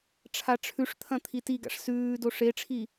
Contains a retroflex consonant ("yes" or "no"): yes